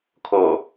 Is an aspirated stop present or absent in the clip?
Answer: present